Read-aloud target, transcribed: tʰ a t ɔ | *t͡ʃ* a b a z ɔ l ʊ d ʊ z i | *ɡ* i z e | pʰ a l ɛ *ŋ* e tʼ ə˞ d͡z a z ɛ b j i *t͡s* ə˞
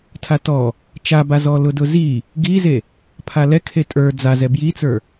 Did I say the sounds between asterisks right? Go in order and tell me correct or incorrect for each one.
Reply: correct, correct, incorrect, correct

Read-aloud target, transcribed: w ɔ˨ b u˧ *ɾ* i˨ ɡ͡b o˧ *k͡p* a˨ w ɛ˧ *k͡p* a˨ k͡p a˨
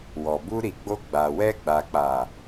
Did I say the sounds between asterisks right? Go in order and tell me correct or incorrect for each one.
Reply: correct, incorrect, incorrect

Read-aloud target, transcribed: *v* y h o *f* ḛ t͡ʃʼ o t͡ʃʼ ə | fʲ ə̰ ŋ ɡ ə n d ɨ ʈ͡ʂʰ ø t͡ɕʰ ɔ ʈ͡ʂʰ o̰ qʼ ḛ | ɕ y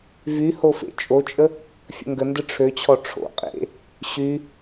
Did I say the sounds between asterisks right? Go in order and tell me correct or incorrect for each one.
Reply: correct, correct

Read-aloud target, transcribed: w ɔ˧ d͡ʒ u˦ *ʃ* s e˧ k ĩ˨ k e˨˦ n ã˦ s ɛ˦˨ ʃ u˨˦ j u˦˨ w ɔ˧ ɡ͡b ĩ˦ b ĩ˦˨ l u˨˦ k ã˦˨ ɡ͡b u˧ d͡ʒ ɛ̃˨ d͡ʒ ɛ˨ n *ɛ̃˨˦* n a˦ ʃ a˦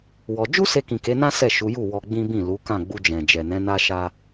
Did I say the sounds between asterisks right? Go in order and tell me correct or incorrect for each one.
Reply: incorrect, correct

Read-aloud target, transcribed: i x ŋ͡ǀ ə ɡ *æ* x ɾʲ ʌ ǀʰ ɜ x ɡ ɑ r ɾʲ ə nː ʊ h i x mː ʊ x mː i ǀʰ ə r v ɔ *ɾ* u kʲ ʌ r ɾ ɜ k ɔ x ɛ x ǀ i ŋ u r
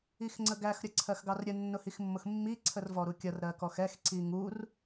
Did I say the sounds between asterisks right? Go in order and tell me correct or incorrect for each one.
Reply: correct, correct

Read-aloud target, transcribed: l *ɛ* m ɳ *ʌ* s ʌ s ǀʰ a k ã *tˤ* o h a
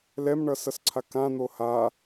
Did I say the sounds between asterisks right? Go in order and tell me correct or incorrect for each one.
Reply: correct, correct, incorrect

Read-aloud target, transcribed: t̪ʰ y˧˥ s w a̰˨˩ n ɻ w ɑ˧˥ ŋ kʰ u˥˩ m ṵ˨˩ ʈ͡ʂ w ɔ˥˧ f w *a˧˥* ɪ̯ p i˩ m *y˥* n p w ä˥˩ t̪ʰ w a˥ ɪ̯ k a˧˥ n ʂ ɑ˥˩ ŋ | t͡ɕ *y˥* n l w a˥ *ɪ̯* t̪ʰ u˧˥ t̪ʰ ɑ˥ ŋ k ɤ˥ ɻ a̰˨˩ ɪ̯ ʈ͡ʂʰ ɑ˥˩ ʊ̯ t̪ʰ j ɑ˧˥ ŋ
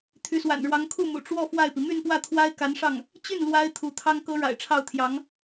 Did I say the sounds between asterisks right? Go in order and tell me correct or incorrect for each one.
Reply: incorrect, incorrect, incorrect, correct

